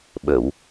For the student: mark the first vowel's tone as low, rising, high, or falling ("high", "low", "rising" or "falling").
low